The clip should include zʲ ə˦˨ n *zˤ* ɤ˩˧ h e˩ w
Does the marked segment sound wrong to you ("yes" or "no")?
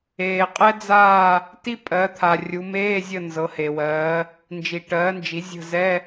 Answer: yes